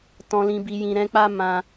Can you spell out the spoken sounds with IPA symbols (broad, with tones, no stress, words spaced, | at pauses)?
tɔ̃˨lĩ˨bi˨jĩ˨ ɾɛ̃˧k͡pa˦ mã˦